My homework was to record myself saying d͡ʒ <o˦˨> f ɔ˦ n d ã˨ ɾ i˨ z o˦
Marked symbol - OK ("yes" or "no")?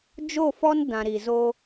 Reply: yes